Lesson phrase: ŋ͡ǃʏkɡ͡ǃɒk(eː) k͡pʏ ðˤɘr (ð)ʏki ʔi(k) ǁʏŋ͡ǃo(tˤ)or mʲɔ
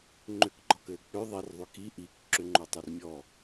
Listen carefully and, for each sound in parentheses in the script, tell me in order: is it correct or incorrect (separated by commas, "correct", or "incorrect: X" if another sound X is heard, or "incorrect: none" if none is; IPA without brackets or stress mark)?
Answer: incorrect: ɘː, incorrect: ðˤ, correct, correct